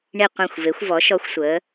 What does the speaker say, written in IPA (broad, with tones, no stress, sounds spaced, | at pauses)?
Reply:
ɳ i˧˩ qʷ ĩ˧˩ xʷ v e˩˧ xʷ v ɔ˩˧ ʃ ɔ˧ xʷ sʷ əː˩˧